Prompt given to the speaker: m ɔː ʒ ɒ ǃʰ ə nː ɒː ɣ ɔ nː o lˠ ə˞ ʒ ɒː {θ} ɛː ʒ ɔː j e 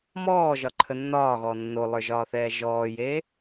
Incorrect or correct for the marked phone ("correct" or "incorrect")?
correct